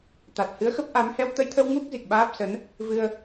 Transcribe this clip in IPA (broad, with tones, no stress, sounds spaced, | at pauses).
t̪ a˨˩ t̚ h ɨ˨˦ ə̯ x ə˦˥ p̚ ʔ a˨˦ m h ɛ˧ w t̪ ə˧ j t̪ʰ ə˧ w ŋ u˦˥ k̚ z i˨˩ k̚ ɓ aː˦˥ p̚ s ə˨˦ n | v ɨ˧ ə̯